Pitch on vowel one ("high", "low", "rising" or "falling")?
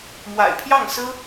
low